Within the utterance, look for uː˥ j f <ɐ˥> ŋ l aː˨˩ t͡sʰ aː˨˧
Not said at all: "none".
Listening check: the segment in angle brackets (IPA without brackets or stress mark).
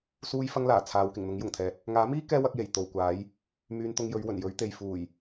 ɐ˥